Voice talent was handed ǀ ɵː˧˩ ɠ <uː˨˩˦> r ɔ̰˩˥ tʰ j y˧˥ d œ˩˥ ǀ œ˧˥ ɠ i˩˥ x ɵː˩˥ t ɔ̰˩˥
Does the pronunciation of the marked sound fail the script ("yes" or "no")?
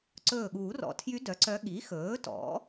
no